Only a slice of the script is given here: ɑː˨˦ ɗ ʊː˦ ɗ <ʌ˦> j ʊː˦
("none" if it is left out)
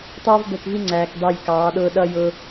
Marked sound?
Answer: ʌ˦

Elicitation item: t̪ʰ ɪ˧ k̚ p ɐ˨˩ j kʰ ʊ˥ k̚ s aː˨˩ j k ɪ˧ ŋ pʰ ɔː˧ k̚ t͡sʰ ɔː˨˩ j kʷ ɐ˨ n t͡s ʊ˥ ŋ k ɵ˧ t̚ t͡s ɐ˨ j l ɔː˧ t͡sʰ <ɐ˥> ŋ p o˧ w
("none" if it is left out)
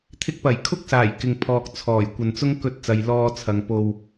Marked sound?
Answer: ɐ˨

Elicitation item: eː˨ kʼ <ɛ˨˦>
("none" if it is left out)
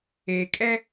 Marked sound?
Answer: ɛ˦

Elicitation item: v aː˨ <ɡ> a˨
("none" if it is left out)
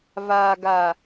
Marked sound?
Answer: ɡ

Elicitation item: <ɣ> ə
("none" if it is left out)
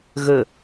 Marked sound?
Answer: ɣ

